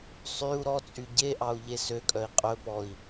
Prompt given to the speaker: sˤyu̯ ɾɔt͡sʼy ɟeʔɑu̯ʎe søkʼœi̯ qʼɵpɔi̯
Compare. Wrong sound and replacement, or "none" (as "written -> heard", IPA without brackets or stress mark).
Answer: none